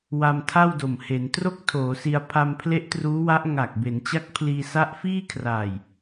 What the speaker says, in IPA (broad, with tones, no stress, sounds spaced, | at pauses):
w a˧ m tʰ a˥˩ w d o˨˩ m h e˩˦ n t r o˥˩ k̚ tʰ oː˩˦ s i˧ a̯ pʰ a˧ m pʰ l e˦˥ ʔ t r uː˦˥ w a˦˥ ʔ ŋ a˨˩ k̚ b e˩˦ n t͡ɕ a˦˥ k̚ pʰ l iː˧ s a˦˥ ʔ f iː˥˩ kʰ r aː˨˩ j